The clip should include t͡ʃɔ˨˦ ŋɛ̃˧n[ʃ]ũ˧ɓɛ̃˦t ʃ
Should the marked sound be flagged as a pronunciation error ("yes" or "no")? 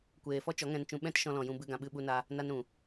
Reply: yes